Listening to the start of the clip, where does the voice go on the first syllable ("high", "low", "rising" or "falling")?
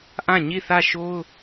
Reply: falling